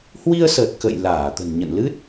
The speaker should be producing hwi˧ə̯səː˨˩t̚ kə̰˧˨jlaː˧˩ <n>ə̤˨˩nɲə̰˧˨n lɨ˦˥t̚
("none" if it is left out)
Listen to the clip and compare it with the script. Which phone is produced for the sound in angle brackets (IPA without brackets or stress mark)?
t̪